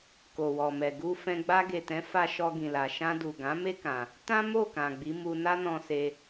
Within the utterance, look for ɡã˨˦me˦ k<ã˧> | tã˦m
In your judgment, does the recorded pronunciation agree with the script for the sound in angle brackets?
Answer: yes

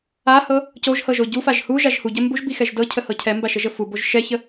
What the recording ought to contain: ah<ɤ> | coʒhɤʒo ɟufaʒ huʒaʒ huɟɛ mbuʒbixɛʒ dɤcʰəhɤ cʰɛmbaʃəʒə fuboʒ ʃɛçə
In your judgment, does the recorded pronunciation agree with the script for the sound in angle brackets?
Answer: yes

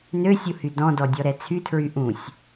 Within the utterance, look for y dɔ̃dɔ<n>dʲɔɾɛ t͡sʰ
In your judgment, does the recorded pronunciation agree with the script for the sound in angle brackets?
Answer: no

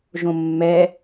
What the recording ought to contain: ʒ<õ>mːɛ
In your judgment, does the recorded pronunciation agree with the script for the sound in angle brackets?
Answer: yes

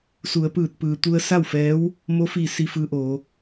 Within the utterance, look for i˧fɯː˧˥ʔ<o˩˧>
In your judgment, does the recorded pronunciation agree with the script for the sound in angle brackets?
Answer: no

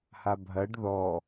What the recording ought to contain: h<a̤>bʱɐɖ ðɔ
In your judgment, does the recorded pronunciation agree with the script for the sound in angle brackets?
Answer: no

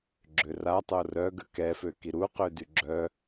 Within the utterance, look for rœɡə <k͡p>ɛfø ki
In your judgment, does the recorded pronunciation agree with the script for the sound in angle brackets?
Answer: no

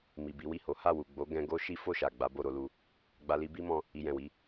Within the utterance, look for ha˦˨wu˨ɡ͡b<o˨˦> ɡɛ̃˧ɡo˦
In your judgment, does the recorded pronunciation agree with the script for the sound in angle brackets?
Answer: yes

